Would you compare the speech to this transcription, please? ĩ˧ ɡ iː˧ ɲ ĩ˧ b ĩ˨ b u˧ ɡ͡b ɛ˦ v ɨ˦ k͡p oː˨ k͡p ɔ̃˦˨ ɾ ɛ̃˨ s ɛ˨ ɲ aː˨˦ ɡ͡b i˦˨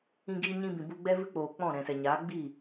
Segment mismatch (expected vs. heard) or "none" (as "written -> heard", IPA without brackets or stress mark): none